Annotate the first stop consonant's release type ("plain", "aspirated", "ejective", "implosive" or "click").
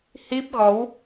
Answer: plain